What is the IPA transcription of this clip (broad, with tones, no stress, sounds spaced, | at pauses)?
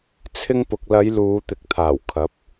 t͡sʰ ɪ˧ ŋ p ʊ˨ k̚ l ɐ˨˧ j l uː˨˧ t̪ ɪ˨ k̚ t̪ʰ aː˨˩ w kʰ ɐ˨˥ p̚